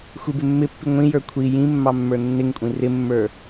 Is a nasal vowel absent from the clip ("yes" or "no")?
no